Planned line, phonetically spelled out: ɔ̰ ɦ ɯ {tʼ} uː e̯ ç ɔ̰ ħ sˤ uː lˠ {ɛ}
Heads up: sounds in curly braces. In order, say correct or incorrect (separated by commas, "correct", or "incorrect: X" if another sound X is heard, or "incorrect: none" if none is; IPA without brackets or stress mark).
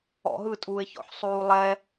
correct, correct